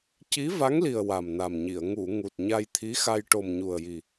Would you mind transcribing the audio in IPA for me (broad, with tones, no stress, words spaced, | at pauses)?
ci˧˥va˧˥ŋ li˨˩ə̯ wa˨˩mna˨˩mɲi˨˩˨ə̯ ŋu˨˩˨ ŋu˨˩t̚ɲa˧jt̪ʰi˧˥xa˧j ʈo˨˩mɲu˨˩ə̯ji˨˩